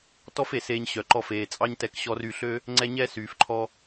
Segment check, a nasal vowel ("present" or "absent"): absent